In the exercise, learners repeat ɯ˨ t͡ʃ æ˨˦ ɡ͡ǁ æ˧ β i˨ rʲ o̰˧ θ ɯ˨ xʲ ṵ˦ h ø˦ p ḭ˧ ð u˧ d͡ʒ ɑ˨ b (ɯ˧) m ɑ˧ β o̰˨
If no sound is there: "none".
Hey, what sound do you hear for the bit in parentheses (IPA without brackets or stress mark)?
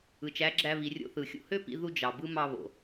ɯ˦